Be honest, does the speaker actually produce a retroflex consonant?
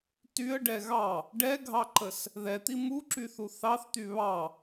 yes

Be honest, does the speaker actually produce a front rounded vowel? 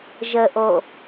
no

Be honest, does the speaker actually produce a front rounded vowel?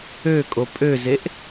yes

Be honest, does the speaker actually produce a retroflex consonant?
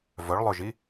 yes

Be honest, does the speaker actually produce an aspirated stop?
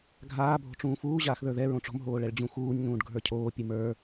yes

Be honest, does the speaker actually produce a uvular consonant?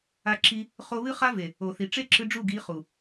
yes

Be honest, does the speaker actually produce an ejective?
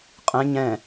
yes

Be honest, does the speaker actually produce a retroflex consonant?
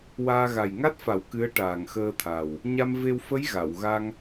yes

